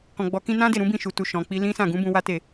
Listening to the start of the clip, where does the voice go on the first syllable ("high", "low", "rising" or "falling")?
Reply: low